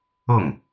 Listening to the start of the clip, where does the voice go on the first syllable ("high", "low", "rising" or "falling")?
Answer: falling